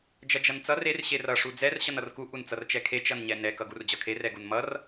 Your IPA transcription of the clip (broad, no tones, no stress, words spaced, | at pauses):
d͡ʒʌd͡ʒʌnt͡sʌr er ɕerʌ ʂud͡zɛr ɕʌnʌrku ʔunt͡sʌrt͡ʃɛkʰe t͡ʃʌnɲɛnɛ kʌɡurd͡ʑʌkʰe rɛɡunmʌr